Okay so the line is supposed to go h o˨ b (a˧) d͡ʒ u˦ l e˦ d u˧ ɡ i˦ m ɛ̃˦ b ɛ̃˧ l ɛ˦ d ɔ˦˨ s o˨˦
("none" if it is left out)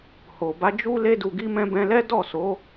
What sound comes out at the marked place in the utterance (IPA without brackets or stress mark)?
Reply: a˧